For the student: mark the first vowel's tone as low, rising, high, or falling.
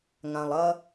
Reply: low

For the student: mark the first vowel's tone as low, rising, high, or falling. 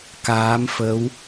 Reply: rising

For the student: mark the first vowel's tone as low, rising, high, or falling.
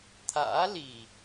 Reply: rising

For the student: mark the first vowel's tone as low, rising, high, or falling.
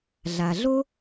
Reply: low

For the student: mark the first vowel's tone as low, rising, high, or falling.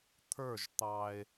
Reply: falling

